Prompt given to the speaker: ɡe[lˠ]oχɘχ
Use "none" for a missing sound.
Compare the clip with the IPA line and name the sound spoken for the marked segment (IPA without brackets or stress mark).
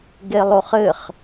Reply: lˠ